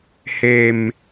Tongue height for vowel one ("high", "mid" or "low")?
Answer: mid